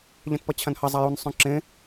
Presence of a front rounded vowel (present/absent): present